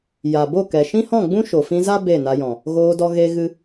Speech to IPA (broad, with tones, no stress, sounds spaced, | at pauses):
j a˨ b o˦˨ k ɛ˨ ʃ ĩ˦ h ɔ̃˦˨ ɡ͡b ũ˦ ʃ o˨ f ĩ˧ z a˦ b e˦˨ n a˧ j ɔ̃˨ | ɣ oː˧ d ɔ˧ ɣ e˧ ɣ ɨ˧